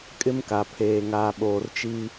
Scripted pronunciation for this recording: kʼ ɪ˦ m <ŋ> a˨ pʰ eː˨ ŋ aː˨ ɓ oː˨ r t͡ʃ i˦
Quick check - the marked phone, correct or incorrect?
incorrect: k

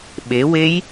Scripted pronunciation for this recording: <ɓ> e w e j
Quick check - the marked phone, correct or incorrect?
correct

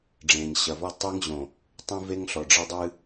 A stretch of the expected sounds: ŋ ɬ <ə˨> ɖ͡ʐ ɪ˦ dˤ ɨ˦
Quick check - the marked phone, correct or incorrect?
incorrect: ɔ˨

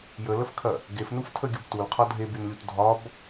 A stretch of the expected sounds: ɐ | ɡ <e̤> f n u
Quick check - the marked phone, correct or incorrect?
incorrect: e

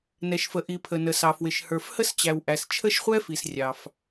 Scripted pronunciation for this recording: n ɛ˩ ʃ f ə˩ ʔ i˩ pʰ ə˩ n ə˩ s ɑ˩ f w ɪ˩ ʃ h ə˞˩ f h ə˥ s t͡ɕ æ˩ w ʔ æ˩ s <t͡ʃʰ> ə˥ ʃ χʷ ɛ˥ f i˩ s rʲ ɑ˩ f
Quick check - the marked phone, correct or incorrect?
correct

